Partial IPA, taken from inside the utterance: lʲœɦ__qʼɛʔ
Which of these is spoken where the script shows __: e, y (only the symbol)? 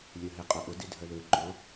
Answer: e